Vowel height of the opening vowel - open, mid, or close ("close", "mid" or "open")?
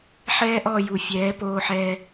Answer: mid